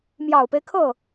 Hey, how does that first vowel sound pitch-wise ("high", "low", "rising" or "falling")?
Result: low